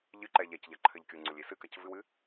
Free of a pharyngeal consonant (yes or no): yes